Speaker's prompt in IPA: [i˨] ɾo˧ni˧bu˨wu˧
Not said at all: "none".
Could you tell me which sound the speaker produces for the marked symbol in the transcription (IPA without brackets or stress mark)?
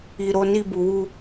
i˨